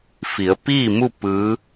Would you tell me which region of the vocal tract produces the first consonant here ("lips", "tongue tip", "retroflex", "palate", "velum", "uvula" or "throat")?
lips